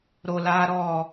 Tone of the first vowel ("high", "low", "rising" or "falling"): low